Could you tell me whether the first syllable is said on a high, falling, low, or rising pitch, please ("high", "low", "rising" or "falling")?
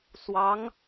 rising